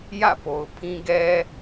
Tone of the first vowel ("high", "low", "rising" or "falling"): falling